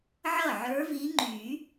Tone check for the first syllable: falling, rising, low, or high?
falling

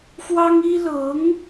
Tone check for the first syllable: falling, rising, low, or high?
high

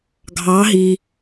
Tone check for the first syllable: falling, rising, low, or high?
rising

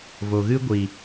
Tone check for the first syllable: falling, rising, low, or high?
low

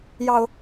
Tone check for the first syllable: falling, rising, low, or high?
low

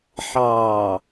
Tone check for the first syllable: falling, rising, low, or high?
low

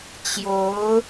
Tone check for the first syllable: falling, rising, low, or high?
rising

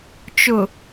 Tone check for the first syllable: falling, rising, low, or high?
low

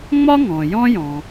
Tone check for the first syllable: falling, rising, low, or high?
high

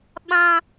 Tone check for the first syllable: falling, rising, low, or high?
high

